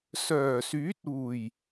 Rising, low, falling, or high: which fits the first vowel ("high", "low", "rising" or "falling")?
low